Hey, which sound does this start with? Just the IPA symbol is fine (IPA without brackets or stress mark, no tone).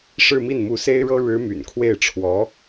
ʂ